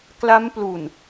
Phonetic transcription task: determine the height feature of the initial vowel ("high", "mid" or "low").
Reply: low